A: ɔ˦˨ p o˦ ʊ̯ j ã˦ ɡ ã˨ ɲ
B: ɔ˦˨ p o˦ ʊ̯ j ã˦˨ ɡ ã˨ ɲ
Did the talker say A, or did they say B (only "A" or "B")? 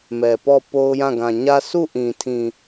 B